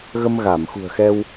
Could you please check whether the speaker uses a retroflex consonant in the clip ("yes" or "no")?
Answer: no